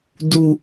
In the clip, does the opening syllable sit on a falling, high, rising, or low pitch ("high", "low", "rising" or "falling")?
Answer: low